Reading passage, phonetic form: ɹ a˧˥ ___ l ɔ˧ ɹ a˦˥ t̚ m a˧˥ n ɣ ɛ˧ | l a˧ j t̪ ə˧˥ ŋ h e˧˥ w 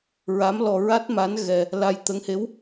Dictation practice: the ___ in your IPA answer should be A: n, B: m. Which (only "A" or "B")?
B